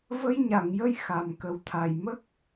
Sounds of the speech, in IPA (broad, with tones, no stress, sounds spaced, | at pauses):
v ə˧ j ɲ a˨˩˨ ŋ j ə˧ j x a˨˩ m k ə˨˩ w t̪ʰ a˨˩ j m ə˦˥ k̚